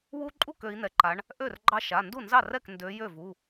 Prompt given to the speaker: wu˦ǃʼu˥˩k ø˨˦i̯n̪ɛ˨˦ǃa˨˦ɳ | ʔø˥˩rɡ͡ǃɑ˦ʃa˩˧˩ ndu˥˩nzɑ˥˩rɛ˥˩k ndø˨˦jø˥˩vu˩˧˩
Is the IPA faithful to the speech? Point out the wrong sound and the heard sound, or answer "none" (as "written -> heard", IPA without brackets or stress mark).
none